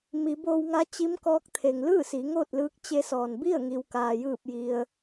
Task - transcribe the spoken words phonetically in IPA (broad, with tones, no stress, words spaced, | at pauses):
mi˩˧boː˧wŋa˧˥ t͡ɕi˧˥mkɔː˧˥k̚t̪ʰe˩ŋ lɯː˥˨ siː˩˧ŋoː˥˨t̚lɯː˧˥k̚ t͡ɕe˧˥sɔː˩n bi˥˨ə̯ŋi˩w kaː˩jɯː˧˩p̚ji˩ə̯